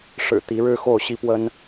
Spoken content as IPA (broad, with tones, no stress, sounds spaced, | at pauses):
ʂ ɻ̩˨˩ t̪ i˧˥ ɻ ɻ̩˥ x o˥˩ ʊ̯ ɕ i˥ p w ə˥ n